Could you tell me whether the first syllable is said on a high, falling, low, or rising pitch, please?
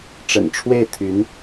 low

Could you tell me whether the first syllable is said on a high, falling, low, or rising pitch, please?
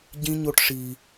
high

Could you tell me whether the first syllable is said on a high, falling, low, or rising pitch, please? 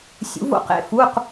rising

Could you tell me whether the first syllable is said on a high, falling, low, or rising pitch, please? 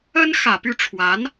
high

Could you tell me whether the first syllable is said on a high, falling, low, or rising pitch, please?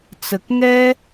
low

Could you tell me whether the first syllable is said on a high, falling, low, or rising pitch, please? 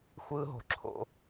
high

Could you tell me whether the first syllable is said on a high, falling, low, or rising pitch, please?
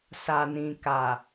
low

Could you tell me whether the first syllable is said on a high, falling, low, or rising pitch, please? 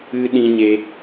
high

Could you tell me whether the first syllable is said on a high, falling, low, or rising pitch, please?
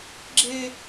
high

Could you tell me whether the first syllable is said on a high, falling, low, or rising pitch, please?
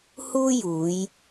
high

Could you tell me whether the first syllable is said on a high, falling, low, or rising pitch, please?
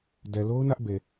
low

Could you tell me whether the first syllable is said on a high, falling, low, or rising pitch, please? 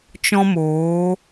high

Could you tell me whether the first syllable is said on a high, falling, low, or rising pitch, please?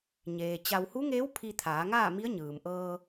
low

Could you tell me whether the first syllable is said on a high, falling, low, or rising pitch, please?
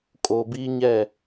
low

